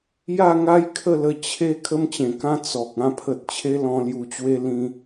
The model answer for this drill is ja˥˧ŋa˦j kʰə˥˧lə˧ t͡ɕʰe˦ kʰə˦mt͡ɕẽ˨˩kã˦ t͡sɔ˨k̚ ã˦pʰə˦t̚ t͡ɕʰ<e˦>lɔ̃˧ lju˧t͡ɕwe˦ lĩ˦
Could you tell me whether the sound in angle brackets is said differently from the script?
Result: no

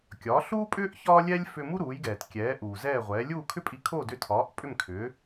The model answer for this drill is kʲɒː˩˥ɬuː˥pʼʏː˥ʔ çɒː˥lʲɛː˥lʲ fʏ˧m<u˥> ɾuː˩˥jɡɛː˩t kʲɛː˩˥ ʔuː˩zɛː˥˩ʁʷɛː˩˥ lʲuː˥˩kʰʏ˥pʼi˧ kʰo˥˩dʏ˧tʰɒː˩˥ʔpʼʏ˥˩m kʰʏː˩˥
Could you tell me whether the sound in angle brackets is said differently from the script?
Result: no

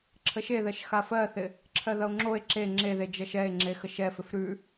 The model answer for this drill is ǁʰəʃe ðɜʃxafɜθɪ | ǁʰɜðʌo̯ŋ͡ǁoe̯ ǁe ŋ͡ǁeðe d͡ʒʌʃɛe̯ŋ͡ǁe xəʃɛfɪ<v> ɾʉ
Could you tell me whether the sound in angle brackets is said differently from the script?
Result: yes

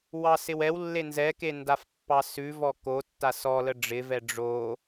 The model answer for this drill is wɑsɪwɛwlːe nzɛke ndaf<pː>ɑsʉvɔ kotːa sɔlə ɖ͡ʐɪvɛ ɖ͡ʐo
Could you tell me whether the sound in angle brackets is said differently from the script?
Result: no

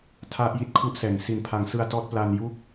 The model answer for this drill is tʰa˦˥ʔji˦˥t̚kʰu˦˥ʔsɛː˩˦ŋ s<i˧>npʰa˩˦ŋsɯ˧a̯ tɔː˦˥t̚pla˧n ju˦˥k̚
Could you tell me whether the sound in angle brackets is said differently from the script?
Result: yes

